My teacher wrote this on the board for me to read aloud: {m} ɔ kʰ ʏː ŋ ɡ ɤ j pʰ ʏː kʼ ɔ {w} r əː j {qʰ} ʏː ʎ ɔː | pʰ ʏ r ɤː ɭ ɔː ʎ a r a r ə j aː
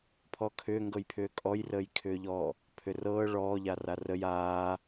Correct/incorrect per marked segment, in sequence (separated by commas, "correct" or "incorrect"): incorrect, incorrect, incorrect